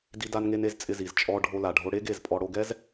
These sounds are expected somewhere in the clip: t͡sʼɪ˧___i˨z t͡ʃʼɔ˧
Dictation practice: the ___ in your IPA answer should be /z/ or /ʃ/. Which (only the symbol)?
z